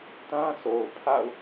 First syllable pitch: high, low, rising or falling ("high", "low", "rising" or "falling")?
high